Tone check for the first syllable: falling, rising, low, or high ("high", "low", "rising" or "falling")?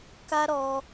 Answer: high